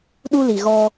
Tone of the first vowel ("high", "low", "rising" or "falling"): high